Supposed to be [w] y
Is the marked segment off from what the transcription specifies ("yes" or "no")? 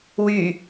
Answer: no